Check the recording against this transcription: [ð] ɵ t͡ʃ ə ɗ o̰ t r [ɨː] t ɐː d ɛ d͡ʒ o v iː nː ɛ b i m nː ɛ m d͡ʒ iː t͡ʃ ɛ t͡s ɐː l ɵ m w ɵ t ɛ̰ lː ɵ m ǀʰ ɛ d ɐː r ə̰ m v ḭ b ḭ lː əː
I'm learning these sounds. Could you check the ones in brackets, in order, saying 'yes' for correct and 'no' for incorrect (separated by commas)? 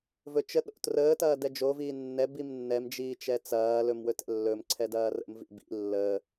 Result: no, no